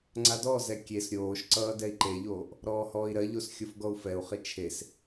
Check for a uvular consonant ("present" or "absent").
present